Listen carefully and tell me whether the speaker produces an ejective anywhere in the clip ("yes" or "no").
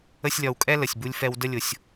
yes